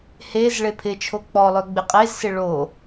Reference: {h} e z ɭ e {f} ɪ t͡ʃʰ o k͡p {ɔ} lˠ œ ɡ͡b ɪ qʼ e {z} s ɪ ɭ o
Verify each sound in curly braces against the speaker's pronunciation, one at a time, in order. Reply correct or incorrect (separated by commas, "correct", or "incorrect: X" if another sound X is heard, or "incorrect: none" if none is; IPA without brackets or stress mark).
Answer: correct, incorrect: pʰ, correct, correct